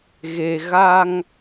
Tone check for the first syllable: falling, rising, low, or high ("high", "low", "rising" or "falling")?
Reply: low